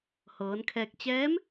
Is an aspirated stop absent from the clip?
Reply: no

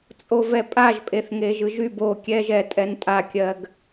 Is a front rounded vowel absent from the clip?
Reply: no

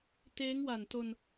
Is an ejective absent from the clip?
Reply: yes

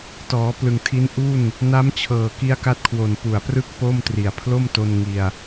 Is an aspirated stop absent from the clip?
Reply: no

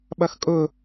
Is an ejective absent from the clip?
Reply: no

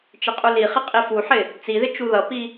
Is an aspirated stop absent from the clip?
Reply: yes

